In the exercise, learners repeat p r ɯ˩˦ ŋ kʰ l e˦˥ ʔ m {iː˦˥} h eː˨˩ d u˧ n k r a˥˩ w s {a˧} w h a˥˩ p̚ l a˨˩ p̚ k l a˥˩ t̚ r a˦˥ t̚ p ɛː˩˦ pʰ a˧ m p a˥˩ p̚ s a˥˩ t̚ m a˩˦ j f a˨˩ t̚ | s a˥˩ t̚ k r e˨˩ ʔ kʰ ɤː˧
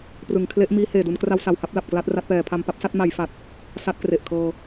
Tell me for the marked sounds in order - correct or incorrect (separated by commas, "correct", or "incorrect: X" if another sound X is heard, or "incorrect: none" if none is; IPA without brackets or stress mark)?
correct, incorrect: a˨˩